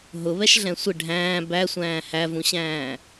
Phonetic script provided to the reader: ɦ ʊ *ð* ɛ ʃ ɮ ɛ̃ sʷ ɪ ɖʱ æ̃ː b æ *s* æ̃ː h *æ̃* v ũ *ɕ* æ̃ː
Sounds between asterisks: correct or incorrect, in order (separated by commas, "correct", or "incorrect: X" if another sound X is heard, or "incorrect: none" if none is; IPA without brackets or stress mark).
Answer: incorrect: β, incorrect: sʷ, incorrect: æ, correct